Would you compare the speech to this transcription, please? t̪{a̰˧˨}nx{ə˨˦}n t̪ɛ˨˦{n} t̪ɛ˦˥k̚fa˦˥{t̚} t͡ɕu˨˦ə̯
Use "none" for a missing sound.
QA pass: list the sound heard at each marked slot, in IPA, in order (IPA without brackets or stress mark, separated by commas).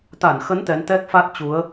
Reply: a˧˩, ə˨˦, n, t̚